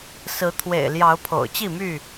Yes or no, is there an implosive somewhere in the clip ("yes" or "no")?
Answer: no